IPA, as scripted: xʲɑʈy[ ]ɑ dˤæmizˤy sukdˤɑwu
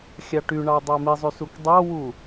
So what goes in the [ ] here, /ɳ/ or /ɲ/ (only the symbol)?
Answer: ɳ